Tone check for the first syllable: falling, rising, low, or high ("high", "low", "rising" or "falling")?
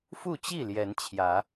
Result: falling